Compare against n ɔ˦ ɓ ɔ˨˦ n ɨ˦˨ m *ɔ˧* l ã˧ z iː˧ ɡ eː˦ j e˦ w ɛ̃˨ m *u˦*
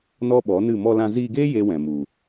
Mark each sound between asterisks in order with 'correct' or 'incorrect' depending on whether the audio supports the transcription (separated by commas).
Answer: correct, incorrect